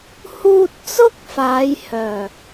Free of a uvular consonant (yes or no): yes